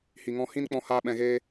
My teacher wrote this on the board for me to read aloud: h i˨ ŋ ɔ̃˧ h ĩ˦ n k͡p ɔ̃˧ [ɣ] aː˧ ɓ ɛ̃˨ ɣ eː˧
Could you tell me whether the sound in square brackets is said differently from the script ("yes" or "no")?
yes